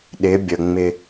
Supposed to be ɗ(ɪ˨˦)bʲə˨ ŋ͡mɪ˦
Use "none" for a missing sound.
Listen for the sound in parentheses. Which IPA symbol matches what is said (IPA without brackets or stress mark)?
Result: ɪ˨˦